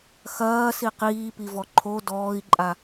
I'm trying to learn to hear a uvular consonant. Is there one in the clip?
yes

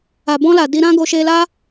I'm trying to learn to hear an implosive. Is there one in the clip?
no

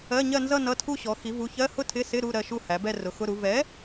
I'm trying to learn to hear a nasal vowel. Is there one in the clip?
no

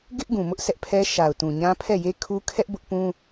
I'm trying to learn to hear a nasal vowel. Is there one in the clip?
yes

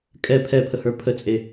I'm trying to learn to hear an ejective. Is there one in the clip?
yes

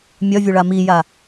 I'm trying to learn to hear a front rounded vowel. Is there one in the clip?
yes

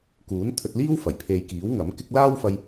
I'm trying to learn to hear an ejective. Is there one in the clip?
no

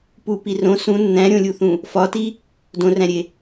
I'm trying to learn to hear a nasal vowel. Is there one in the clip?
yes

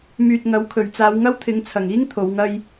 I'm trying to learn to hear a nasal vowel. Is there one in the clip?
no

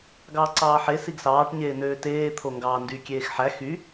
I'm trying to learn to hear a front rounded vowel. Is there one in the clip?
yes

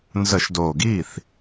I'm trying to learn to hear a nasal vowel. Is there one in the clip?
no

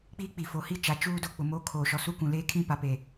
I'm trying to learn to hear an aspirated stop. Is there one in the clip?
yes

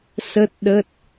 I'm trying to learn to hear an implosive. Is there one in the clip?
yes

